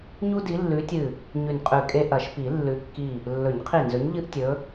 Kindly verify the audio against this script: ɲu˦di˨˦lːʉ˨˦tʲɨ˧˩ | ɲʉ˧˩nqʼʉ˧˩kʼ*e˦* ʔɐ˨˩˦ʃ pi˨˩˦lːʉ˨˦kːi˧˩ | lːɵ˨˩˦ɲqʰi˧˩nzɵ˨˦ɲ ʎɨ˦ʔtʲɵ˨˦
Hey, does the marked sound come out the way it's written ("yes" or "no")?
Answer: yes